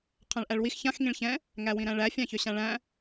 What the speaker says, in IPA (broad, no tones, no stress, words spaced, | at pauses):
qʰæ̃ɭʔæɭwix çãx ŋĩɭçɛ̃ | ŋæwĩɾæ̃ɭæ fʲãçøɕãɭæ̃